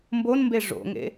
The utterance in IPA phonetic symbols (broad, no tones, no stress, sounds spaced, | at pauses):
m b o n m b e ʐ o̰ ŋ ḛ